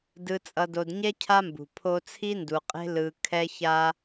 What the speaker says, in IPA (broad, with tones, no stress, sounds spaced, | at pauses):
d ɯ˨ t͡sʼ ʌ˨ d o˨ d ɲ ɛ˦ cʰ a˦ m b ṳ˨ pʰ o˦ t͡sʰ i˦ n d u˨ qʼ e̤˦ l ɯ˦ kʰ ɛ˦ ç a˦